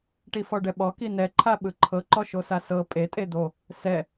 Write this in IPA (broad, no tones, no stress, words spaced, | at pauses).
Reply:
ʈifɔɖɛɓɔ kinɛ ǃʰaɓɯǃʰɤ ǃɔʃosasɤ pʼe tʼed̪o | sɛ